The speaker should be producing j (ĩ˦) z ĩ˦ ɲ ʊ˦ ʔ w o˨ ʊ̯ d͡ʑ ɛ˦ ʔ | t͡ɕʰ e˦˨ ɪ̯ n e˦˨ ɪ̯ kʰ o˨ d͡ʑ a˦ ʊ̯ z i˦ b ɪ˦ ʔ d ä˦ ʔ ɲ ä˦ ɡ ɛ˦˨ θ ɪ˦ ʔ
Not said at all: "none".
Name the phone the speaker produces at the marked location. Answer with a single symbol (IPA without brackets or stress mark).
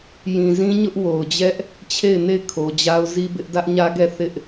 ĩ˨